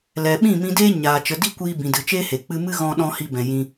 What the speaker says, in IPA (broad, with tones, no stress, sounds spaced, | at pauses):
l ɛ˨ ɓ ĩ˦˨ m ĩ˧ d eː˦ ɲ aː˨ t͡ʃ ə˨ d i˧ kʷ iː˧ b ĩ˨ d ɨ˨ t͡ʃ eː˦ h e˨ k͡p ɨ˧ m ɨ˦ ɣ ɔ̃˧ ɗ ɔ̃˧ h i˧ b ɛ̃˨ j ĩ˧